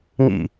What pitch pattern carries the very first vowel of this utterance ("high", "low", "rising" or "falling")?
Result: falling